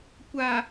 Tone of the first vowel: low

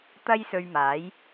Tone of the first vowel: high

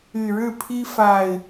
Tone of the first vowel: low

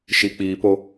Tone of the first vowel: low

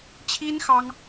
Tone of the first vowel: high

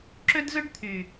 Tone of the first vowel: high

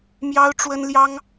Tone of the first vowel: high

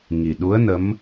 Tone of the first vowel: low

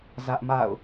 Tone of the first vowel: high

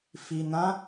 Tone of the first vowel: low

